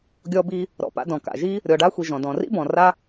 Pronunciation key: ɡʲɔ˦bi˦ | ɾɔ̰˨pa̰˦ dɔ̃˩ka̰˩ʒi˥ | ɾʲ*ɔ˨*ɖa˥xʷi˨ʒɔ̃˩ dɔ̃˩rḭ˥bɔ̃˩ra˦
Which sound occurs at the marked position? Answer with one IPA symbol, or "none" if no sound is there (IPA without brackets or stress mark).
ɔ˨